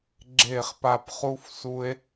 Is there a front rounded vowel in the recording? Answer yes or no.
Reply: no